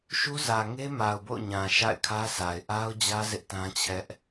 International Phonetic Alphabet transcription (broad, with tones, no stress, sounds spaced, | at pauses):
ʃ u˦ z ä˨ ŋ e˦ m a˨ ʊ̯ b o̰˦˨ ʊ̯ ɲ ã˨ ʃ a̰˦˨ ɪ̯ kʰ ä˦ s a˨ ɪ̯ ʔ a˦ ʊ̯ d͡ʑ ä˦ z ɪ˦ ʔ t ã˦ t͡ɕʰ ɛ˦ ʔ